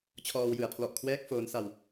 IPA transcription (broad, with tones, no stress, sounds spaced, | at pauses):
t͡ɕʰ ɔː˧ w j ɯ˨˩ a̯ pʰ l ɔ˨˩ ʔ kʰ w ɛː˦˥ k̚ f oː˦˥ n s a˧ w